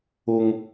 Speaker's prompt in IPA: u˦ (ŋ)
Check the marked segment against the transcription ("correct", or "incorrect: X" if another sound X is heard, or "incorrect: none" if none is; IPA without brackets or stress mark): correct